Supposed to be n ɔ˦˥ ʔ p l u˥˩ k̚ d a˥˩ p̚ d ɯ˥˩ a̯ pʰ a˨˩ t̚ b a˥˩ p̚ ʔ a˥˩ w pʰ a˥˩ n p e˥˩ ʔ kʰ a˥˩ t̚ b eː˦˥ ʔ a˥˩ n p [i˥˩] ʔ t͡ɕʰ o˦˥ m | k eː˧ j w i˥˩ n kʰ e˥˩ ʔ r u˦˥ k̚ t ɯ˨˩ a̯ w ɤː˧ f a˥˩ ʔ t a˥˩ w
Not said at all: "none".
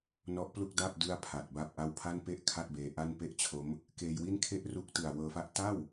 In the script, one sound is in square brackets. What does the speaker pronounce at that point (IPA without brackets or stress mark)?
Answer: e˥˩